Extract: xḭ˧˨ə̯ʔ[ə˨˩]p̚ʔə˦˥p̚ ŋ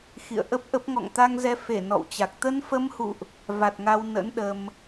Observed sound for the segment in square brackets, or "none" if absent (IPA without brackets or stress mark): ə˦˥